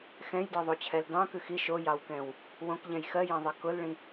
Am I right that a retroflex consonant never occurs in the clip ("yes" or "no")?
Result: no